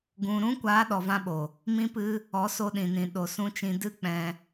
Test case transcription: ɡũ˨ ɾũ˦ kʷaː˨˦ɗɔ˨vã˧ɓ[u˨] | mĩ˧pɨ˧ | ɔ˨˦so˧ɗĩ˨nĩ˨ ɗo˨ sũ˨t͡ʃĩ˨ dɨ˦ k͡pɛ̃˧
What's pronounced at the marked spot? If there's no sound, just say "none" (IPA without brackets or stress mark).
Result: o˨